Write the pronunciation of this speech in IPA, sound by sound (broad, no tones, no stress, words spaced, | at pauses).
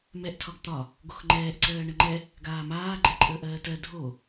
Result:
mɛʔtʰɒɡ t̪ɒ | ɡoxŋ͡ǃɛːʔǀɜː ɳəŋ͡ǃɛ | ɡaːmaː ɡ͡ǃɛǃʼəːʔɜːtɜ dʱo